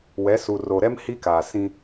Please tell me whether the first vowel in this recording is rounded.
no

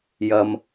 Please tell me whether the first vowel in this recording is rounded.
no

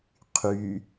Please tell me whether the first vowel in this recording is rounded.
yes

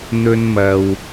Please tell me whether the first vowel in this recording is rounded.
yes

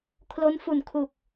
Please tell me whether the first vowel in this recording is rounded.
yes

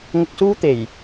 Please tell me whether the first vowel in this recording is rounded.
yes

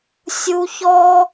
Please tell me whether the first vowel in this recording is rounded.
yes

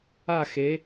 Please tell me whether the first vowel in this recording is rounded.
no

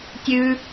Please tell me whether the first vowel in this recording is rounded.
yes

